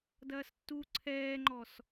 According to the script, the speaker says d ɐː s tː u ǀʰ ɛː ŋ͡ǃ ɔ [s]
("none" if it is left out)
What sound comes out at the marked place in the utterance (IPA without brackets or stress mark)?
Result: s